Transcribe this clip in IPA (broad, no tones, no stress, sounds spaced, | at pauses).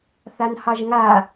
θ a n h ɑ ʒ ŋ a